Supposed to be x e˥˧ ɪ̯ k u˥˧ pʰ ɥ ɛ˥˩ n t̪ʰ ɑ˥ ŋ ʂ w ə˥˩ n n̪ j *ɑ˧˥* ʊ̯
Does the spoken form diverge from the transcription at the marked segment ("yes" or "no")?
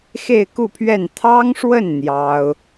yes